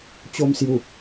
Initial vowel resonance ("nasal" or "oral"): oral